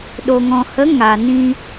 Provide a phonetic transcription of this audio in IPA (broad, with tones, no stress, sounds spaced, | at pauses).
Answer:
ɗ o˨ ŋ ɔ̃˨ h ə˨˦ ŋ a˨ n ĩ˧